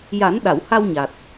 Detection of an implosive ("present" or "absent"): present